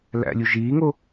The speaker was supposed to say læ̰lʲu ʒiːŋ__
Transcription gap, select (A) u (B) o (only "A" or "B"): B